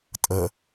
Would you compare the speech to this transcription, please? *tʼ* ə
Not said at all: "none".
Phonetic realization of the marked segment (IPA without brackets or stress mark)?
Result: tʼ